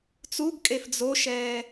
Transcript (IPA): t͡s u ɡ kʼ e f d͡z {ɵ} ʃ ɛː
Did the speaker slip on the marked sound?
yes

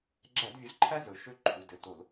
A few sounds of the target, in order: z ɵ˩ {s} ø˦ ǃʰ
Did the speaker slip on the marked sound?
yes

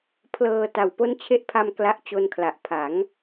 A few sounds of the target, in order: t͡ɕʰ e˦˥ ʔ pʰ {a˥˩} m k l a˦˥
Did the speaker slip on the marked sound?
yes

